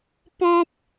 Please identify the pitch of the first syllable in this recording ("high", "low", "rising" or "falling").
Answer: high